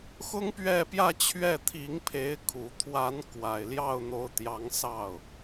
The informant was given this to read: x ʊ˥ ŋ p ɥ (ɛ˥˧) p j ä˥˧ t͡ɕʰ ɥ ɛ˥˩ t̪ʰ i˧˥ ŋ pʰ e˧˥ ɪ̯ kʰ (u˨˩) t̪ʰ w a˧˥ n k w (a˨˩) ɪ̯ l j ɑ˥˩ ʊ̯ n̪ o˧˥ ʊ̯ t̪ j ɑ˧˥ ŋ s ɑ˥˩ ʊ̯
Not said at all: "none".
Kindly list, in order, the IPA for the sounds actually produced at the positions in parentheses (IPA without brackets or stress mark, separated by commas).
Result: ɛ˥˧, u˨˩, a˨˩